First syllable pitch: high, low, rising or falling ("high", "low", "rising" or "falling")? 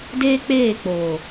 high